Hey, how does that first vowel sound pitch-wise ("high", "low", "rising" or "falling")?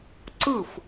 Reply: falling